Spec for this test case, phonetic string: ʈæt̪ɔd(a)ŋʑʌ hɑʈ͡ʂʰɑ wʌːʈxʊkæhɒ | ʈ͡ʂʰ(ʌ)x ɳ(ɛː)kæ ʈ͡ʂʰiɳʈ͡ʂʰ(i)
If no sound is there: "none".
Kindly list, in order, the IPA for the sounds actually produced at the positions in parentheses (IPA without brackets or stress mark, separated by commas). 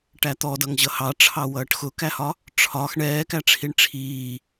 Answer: ʌ, ɒ, ɛː, iː